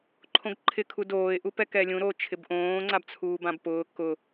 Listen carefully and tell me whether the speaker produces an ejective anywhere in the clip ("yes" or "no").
no